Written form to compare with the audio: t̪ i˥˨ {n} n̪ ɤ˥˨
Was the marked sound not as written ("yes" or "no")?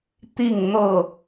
yes